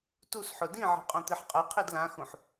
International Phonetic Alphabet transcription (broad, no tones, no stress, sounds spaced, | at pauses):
t u s ħ ʊ d ĩ ʕ i̤ qʼ õ t̪ i ħ qʼ ɛ qʰ i d l ã x ũ ħ